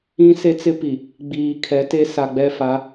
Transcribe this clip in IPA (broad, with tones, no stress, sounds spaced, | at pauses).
ĩ˦ s e˦ t͡s ɪ˦ p i˨ | ɡ͡b iː˨ kʰ ɛ˨˦ t e˦ s a˨ ɡ͡b ɛ˦ f a˨˦